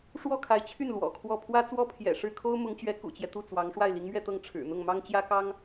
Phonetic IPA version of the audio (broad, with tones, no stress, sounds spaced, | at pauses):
ʂ w ɔ˥˩ kʰ a˧˥ ɪ̯ t͡ɕʰ y˥˩ n l w ɔ̰˨˩ kʰ w ɔ˥˩ pʰ w ä˥ t͡s w ɔ˥ pʰ j ɛ̰˨˩ ʂ ɻ̩˥˩ kʰ o˥ ʊ̯ m ʊ˧˥ ŋ t͡ɕ ɥ ɛ˧˥ k ṵ˨˩ t͡ɕ j ɛ˦ t̪ u˥˩ t͡s w ɑ˧˥ ŋ ʂ w a˥˩ ɪ̯ l i˧˥ ŋ m ɥ ɛ˥˧ t̪ ɤ˥˩ ŋ ʈ͡ʂʰ ɻ̩˨˩ n̪ ʊ˥˩ ŋ m ɑ˥ ŋ t͡ɕ j ä˥ k ɑ˥ ŋ